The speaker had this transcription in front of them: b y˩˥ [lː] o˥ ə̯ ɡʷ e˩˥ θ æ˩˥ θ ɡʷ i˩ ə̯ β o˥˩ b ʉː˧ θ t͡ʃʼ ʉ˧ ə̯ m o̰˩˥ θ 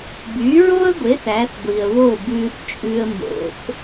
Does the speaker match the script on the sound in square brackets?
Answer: no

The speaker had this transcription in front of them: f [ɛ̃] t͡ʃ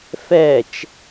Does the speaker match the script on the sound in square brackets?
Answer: no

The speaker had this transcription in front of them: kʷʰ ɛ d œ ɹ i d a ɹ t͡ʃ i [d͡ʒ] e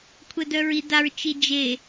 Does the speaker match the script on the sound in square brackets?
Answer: yes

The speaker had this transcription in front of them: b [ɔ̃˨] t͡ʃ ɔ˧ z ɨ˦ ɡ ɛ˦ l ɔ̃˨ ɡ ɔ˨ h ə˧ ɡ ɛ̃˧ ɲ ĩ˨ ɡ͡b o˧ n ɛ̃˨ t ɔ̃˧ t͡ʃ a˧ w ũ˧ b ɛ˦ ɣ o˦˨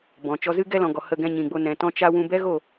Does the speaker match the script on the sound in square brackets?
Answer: yes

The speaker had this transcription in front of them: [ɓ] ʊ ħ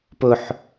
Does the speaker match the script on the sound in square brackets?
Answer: no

